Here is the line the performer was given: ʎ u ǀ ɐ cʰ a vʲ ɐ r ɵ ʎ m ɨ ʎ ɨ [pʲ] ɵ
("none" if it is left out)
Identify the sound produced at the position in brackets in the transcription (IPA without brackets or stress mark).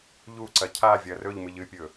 pʲ